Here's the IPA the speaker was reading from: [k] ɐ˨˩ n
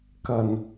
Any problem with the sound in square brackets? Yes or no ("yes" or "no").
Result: no